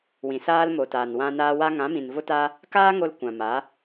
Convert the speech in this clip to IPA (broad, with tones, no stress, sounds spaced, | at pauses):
w ĩ˨ s aː˦ l m o˨ t aː˨ n w ã˧ n aː˧ w a˧ ŋ ã˨˦ m ĩ˨ n v o˦ t a˦ | k aː˦ ŋ o˧ l kʷ ã˨ m a˨˦